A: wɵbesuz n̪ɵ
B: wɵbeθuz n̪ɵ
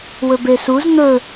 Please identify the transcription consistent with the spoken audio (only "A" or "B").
A